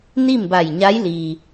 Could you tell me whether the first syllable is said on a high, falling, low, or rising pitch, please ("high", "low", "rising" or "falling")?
falling